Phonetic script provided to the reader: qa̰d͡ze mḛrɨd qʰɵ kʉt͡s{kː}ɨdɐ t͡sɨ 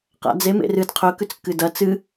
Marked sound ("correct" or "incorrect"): correct